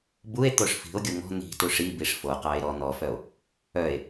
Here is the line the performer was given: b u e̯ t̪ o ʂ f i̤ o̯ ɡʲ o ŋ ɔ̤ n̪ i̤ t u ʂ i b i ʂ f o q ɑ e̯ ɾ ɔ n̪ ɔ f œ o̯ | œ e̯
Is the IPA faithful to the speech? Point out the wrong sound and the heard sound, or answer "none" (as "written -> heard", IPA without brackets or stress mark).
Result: none